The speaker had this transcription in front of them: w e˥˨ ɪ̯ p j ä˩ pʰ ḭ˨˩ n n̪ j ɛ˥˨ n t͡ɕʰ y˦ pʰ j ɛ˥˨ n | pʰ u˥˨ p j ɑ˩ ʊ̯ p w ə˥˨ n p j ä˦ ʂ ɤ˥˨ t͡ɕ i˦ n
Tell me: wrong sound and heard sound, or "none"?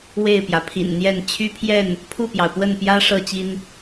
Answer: none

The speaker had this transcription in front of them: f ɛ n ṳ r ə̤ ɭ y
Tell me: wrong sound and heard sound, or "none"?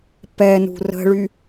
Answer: f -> p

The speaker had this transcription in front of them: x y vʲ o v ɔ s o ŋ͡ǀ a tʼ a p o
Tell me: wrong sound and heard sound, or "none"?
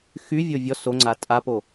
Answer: v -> vʲ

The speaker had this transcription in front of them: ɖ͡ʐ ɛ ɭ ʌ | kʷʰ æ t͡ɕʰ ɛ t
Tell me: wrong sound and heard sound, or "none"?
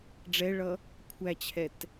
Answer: none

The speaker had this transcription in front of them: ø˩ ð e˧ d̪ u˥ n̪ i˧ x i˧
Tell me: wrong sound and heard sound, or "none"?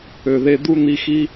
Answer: none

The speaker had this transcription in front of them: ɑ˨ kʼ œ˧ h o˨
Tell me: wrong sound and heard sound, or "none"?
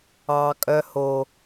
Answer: none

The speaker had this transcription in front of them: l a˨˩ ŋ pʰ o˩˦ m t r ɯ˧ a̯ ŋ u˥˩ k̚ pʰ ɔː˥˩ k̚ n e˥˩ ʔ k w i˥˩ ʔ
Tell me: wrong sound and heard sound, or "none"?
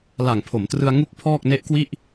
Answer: none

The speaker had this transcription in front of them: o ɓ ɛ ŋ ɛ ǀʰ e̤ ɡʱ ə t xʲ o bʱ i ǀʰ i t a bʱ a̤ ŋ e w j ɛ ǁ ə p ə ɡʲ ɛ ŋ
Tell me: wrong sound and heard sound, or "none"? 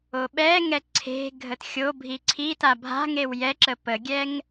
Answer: none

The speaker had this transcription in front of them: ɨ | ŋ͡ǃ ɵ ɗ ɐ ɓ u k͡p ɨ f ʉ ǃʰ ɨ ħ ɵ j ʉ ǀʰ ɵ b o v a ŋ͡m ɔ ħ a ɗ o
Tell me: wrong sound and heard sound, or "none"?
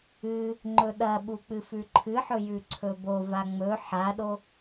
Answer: ɔ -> ɵ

